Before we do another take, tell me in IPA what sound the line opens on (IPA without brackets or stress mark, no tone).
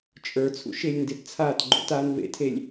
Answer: t͡ʃʼ